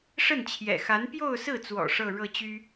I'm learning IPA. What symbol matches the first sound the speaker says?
ʂ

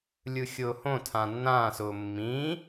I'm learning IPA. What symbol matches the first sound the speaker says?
lʲ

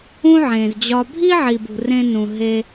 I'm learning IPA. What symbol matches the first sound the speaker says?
ũ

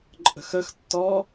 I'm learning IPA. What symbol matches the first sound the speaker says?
ǃʼ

